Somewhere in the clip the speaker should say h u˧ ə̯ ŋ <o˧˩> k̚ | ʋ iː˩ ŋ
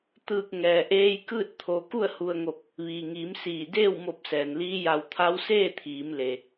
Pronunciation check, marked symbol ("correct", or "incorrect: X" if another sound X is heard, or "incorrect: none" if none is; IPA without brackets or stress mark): correct